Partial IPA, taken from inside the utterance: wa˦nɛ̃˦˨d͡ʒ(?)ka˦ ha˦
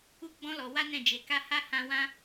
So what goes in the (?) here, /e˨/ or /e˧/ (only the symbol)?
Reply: e˧